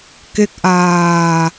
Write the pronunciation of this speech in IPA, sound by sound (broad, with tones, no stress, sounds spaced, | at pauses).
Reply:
k e˦˥ k̚ ʔ aː˧